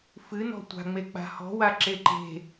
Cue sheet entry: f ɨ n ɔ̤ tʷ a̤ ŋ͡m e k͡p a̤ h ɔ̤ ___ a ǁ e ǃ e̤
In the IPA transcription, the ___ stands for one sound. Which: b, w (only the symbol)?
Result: w